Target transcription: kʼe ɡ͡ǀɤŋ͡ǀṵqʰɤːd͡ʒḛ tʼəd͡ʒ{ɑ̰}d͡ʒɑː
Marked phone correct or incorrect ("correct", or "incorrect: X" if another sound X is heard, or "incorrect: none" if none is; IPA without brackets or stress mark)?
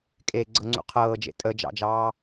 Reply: correct